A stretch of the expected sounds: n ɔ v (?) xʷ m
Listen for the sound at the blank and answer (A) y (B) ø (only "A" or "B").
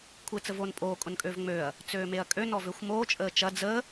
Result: B